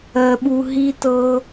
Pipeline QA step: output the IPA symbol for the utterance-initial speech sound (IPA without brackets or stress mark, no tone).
ɜ